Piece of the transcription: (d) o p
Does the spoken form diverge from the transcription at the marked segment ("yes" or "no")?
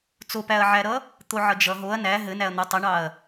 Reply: yes